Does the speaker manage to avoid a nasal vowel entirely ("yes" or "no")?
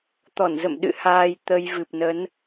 yes